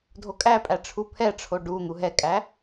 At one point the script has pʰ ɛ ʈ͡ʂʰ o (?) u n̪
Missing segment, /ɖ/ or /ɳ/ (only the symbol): ɖ